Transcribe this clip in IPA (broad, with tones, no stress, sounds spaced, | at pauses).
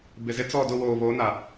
b ɪ˨ z ɪ˦ t͡s ɔ˦˨ d ʊ˦˨ w oː˨ β o˨˦ n a˨